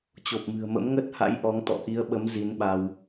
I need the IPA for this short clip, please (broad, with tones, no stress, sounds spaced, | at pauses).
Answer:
t͡ɕ o˨˩ p̚ m ɨ̤˨˩ ə̯ m ə̰˧˥ m ŋ ə˦˥ t̚ h a̰˧˥ j ʔ ɔ˨˦ ŋ t̪ ɔ̰˧˨ ʔ i˨˦ ə̯ ɓ ə˨˦ m z i˨˦ n ɓ a˧ w